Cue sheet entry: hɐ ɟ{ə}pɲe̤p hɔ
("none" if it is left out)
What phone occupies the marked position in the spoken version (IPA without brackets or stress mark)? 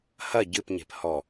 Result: ɨ